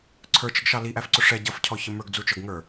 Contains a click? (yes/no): yes